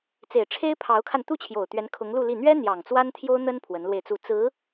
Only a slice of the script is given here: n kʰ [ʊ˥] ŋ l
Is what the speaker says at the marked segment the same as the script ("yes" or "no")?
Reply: no